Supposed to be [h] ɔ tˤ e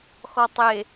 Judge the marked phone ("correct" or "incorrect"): incorrect